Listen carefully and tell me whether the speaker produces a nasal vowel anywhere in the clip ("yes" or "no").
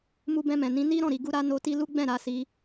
yes